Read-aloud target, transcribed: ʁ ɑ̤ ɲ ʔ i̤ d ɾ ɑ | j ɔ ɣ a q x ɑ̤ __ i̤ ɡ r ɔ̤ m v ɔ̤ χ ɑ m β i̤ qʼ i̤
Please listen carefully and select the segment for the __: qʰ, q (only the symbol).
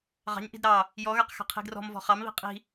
qʰ